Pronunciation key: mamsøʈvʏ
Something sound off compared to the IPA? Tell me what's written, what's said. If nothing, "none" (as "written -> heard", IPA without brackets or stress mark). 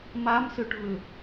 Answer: none